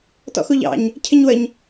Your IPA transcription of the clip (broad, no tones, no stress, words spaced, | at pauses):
tɔ̰xuʎɑ̰ɲ | cʰɪɲwəɲ